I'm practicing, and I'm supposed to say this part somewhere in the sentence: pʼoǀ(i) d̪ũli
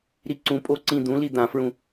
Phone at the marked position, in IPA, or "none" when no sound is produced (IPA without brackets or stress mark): ĩ